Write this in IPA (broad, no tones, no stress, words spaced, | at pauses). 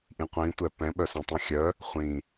ʔĩqʷĩtʷɛ pɛ̃ɓœsɛ̃tˤĩ xʲœ | χʷĩ